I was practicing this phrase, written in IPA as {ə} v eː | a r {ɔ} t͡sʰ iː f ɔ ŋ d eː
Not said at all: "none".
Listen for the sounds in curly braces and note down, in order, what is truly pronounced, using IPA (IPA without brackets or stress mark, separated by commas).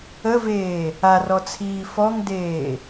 ə, ɔ